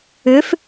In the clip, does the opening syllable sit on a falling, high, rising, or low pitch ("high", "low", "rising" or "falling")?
rising